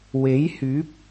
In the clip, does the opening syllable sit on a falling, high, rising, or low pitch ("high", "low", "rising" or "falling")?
rising